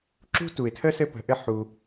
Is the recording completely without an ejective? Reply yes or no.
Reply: yes